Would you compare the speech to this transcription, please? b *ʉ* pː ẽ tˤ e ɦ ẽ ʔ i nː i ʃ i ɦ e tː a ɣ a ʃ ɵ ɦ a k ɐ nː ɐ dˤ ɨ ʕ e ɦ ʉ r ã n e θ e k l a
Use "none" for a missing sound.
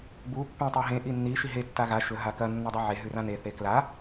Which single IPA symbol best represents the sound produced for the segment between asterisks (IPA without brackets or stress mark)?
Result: u